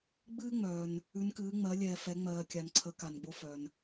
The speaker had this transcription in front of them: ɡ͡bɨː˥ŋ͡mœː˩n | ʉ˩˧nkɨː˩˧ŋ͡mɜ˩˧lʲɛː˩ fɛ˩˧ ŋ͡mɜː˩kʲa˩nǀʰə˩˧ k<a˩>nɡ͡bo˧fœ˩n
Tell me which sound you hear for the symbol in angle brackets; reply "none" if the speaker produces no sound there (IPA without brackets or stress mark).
a˩